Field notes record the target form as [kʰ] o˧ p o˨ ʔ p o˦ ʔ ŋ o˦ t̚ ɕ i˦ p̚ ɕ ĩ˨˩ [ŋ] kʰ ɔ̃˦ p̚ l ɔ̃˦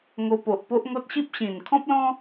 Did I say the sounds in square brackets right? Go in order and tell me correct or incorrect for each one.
incorrect, incorrect

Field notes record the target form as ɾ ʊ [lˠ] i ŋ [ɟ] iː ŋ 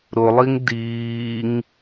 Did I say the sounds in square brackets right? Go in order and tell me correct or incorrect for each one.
correct, incorrect

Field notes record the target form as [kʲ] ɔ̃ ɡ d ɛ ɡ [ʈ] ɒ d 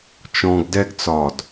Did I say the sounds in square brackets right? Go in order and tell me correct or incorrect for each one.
incorrect, incorrect

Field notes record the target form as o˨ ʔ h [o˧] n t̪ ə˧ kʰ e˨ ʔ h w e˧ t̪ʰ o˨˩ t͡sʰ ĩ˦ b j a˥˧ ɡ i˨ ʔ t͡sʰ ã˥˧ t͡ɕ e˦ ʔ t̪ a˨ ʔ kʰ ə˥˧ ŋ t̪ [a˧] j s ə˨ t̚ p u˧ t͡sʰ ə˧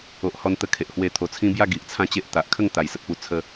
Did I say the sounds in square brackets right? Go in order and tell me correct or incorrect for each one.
incorrect, incorrect

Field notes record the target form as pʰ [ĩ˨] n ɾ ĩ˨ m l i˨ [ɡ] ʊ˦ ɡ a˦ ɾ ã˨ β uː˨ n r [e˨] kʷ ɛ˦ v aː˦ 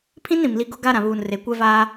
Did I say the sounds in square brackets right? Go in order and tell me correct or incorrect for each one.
incorrect, correct, correct

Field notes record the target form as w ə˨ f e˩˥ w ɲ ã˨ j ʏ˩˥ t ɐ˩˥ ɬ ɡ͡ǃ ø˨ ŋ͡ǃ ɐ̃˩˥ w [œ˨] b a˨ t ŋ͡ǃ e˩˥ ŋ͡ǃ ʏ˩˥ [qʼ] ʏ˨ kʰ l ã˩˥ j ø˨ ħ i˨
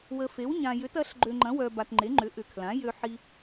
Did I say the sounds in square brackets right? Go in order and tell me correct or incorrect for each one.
correct, incorrect

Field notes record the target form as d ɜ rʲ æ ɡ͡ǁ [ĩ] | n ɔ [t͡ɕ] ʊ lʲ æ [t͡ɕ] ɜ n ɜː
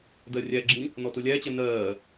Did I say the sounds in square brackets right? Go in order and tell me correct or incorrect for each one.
correct, incorrect, correct

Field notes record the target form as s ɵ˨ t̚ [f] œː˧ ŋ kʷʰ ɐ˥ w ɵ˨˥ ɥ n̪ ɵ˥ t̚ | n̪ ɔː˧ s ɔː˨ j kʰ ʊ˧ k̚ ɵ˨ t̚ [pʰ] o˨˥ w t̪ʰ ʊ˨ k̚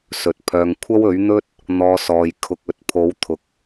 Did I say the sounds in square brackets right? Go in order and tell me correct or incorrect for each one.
incorrect, correct

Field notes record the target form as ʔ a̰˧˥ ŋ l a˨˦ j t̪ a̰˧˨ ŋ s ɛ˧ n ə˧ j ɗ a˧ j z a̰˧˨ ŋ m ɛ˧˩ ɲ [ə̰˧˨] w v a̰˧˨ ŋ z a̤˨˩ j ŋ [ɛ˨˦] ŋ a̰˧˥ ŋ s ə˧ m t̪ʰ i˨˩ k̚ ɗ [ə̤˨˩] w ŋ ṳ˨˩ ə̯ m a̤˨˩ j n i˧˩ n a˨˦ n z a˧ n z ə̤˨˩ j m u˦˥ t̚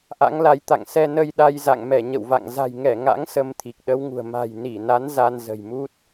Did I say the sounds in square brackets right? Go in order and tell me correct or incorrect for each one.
correct, incorrect, incorrect

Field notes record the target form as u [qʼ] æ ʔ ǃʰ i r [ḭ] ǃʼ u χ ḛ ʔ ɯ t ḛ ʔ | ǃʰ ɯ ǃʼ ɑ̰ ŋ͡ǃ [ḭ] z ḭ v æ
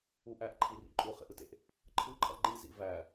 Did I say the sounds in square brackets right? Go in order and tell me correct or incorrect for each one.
incorrect, correct, incorrect

